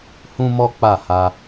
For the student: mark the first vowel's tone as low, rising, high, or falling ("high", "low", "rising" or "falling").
high